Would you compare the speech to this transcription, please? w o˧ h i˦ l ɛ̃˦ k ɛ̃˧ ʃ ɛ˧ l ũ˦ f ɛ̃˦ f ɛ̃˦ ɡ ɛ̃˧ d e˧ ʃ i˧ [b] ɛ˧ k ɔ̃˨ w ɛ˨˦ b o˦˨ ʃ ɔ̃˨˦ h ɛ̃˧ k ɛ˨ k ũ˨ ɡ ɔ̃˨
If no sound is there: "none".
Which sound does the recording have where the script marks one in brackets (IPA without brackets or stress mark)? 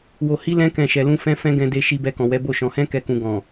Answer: b